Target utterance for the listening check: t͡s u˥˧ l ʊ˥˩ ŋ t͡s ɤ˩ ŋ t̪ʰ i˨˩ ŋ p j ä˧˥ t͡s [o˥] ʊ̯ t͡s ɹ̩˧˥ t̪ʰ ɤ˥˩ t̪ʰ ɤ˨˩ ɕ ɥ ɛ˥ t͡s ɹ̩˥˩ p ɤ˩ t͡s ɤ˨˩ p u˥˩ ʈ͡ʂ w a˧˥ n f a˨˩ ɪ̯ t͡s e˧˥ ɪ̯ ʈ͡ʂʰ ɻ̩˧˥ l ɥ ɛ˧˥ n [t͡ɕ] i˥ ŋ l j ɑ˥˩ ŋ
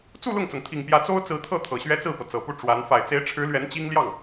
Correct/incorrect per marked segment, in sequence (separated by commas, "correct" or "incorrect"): correct, correct